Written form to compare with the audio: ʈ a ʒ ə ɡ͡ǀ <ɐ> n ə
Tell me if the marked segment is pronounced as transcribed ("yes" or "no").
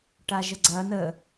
yes